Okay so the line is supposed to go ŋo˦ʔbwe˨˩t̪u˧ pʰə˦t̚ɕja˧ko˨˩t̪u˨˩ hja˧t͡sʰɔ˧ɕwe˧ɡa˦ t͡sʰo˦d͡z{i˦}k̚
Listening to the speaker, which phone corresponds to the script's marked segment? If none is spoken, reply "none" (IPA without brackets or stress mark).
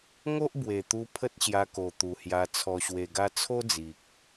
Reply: i˨